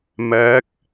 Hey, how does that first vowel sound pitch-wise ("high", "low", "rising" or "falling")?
rising